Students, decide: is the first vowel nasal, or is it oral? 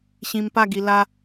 nasal